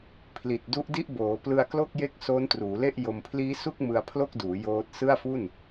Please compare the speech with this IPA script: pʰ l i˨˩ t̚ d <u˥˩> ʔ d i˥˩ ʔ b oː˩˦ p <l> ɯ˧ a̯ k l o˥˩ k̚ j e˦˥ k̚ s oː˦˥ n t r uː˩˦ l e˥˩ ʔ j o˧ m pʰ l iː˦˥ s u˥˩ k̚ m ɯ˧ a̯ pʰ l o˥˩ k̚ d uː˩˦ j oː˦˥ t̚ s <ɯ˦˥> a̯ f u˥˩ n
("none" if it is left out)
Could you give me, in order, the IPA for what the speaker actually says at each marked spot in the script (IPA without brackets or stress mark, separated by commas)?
u˦˥, l, ɯ˥˩